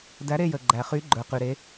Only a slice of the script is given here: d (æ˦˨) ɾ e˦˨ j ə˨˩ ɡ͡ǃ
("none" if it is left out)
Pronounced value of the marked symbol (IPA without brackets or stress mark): æ˨˥